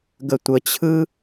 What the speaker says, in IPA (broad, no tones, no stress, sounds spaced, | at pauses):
ɡ ə tʷ ə t͡ɕʰ ɯ